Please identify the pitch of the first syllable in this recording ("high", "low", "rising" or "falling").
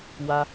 high